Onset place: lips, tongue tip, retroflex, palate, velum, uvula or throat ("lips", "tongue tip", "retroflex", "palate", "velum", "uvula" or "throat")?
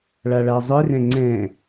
retroflex